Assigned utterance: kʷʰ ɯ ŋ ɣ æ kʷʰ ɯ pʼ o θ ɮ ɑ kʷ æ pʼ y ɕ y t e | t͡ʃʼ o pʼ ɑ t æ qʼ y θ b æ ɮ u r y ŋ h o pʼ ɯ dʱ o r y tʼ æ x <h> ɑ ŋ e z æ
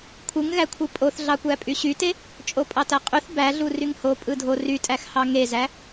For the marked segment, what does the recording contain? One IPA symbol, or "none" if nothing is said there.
h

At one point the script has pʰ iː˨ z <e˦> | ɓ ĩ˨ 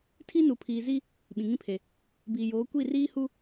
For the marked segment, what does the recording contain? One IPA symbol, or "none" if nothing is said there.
i˦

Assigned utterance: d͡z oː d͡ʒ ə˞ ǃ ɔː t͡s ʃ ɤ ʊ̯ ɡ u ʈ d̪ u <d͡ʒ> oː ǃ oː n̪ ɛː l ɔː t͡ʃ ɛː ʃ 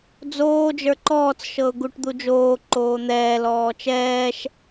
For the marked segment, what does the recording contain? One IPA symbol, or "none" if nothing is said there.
d͡ʒ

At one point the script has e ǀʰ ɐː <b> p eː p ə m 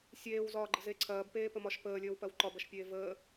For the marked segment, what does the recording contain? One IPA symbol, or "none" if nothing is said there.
b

